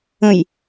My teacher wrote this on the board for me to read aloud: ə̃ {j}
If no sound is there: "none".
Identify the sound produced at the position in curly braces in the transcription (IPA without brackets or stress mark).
j